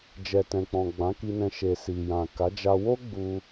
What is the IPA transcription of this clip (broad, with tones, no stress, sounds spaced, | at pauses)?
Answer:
d͡ʒ ɛ˨ t ɛ̃˨ k͡p ɔ̃˨ ɡ͡b ã˨˦ k i˧ n ɛ̃˧ ʃ e˨ s i˨ j ã˨ k a˨˦ d͡ʒ a˧ w o˦ ɡ͡b u˦